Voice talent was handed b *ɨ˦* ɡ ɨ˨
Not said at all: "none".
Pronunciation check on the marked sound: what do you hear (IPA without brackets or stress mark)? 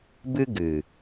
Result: ɨ˦